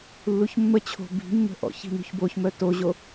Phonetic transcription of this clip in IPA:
lː u ç mː ə t͡ɕʰ o̤ b i̤ mː ə̤ ʔ ɔ̰ ç i̤ n ṳ ç b o ç m œ t o ʑ o

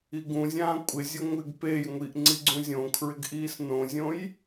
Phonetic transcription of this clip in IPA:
i ɡ ũ zʲ ãː kʷʼ ɪ zʲ ʊ ŋʷ ɪ ɡ p e j ŋʷ i ʔ ŋ͡ǀ i ɡ͡ǀ ũ zʲ õ kʰ ɹ ɪ ɡ ʔ iː s n õ zʲ õ j

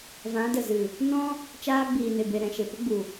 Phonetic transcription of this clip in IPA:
v ã˨˦ d ə˨ z ɨ˨ | n ɔ̃˦ | t͡ʃ aː˧ ɡ͡b iː˨ n e˨ b e˨ ɾ ɛ̃˨ ʃ e˨ p ə˦ ɡ͡b u˨

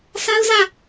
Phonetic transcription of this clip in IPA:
s a˦ ʊ̯ z ä˦˨

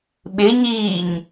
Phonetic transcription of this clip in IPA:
ɓ ɪ ɲ iː ɲ

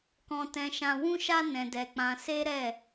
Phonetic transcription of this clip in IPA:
k ɔ̃˦ t ɛ̃˦ ʃ ã˦ w ũ˦ ʃ a˦ n ɛ̃˧ d ɛ˧ k͡p ã˧ s e˦ ɾ ɛ˦˨

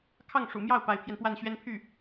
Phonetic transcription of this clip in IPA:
kʰ ɑ˥˩ ŋ ʂ ṵ˨˩ m j ɑ˥˩ ʊ̯ p a˧˥ ɪ̯ pʰ j ɛ˧ n p w a˥˩ n ɕ ɥ ɛ˥ n pʰ y˥˩

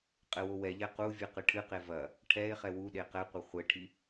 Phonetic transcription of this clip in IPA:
qʼ ɘ w o w ɛ ʎ ɛ q u vʲ ɨ q ɨ ʈʰ ɨ q e v ɐ | ʈʰ ɛ e̯ χ ɛ w u ɗ e q ɛ qʷ ɘ χʷ ɘ ʈʰ i

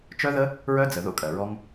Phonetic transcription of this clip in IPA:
t͡ʃ œ˦ ð ə˦ | ɹ œ˦ d͡z ə˨ ð o̰˦ kʼ ɜ˨ ɹ ɔ˧ ŋ

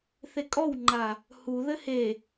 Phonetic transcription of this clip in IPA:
θ e kʼ ɔ w ŋ͡ǃ a | h u ð ɘ h e

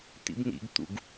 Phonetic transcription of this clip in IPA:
t̪ ḭ b n̪ ḭ ɡ t̪ ṵ ɡ

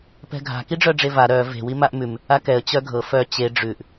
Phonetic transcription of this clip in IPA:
p ɛ̤ ɡʱ a̤ k i ɖ͡ʐ œ ɖ͡ʐ e v a ɾ œ v e̤ w i m a ʔ m ʉ m | a k ɛ ə̯ t͡ɕ œ ɡʱ ɤ f œ t͡ɕ e ɖ͡ʐ ʉ ʔ

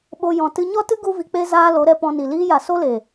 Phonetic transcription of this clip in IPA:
ɓ o˧ j ɔ̃˧ t ɨ˧ ɲ ɔ˦ t ɨ˦ ɡ u˦ v i˧ k͡p e˦ z aː˧ l o˨˦ ɾ ɛ˧ p ɔ̃˧ n i˨ l iː˧ j a˨ s o˦ l e˨

